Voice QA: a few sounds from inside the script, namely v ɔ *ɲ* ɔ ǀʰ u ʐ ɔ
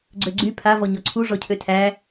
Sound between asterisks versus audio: correct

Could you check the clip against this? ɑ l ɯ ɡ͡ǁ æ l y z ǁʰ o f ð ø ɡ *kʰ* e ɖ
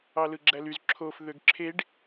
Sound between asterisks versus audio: incorrect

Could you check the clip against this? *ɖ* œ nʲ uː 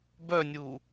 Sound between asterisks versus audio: incorrect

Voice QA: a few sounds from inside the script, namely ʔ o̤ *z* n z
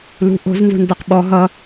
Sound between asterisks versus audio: correct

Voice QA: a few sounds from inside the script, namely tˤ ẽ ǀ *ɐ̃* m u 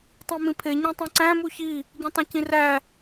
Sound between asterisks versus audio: incorrect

